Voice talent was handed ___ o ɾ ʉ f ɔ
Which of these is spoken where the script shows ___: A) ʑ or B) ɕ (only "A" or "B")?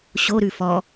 B